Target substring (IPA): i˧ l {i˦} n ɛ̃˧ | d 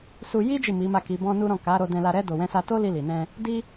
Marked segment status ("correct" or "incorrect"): incorrect